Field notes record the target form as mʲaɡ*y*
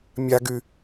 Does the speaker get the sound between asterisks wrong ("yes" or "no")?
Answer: no